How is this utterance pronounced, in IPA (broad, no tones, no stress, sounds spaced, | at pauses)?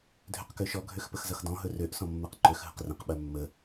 dʱ ø q k ø ʃ ɔ ɡʱ ø x p ə x z ʌ x d ɔ̃ ɦ ɵ r ø ʔ s ɔ̃ mː ɜ q ǃ ø x ɦ ə q r ə̃ q ɓ ɜ mː ə